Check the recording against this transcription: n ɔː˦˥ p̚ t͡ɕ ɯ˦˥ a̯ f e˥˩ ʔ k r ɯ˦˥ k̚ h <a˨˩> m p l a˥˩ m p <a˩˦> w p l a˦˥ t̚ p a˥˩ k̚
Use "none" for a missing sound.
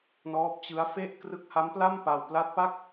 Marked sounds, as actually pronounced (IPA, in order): a˦˥, a˧

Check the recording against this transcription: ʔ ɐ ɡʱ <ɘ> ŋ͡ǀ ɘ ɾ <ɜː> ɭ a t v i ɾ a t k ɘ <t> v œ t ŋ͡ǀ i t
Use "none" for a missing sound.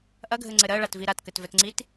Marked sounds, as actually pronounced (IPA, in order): ɘ, ɜ, t

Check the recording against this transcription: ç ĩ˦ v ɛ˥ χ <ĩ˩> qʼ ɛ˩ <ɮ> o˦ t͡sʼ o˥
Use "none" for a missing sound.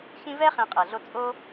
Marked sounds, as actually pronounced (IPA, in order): ĩ˨, ɮ

